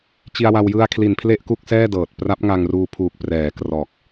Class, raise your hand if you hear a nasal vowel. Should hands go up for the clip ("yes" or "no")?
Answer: no